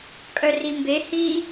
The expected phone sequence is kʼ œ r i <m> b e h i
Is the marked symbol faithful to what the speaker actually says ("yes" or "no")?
yes